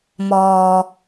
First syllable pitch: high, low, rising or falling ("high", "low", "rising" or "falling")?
low